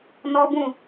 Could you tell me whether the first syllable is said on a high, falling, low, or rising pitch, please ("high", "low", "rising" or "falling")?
high